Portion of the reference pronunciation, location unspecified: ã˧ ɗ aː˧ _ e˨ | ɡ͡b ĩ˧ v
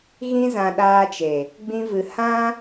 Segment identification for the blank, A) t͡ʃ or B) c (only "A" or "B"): A